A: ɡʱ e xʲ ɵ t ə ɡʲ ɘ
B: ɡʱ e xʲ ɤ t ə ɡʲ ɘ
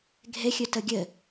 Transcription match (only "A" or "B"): A